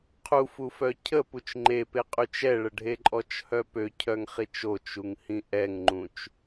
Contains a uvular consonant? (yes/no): yes